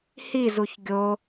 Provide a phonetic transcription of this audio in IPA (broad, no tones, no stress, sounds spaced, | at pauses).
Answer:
h i z u ç ɡʲ o